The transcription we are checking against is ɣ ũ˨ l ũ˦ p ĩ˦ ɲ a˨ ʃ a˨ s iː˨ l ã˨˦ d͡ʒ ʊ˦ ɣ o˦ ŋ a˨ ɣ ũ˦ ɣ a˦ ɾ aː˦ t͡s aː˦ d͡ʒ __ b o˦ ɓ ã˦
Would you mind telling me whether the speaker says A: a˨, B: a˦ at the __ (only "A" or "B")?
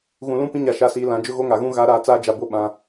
A